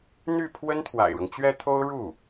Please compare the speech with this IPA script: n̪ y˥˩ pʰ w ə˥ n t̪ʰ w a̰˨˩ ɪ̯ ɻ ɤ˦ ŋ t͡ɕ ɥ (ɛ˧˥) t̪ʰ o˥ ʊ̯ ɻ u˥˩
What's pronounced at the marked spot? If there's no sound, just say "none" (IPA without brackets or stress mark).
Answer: ɛ˥